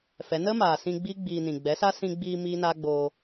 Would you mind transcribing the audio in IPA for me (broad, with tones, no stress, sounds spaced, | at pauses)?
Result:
f ɛ˨˦ n ə˦ m aː˨ s ĩ˧ ɡ͡b iː˦ ɡ͡b iː˧ n ĩ˨ ɡ͡b ɛ˨˦ s a˦ s ĩ˧ ɡ͡b iː˧ m iː˦ n aː˦ ɡ͡b oː˧